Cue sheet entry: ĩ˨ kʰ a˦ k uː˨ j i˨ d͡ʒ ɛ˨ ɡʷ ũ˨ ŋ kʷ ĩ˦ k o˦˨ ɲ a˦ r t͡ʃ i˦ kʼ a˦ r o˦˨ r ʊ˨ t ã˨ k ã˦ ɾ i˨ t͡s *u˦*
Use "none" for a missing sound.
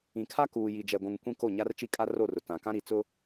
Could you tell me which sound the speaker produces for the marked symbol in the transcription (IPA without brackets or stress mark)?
ʊ˦